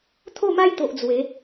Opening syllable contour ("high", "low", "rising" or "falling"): falling